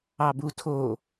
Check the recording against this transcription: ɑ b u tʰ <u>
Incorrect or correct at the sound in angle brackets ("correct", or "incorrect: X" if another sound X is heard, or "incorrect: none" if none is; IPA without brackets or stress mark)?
incorrect: o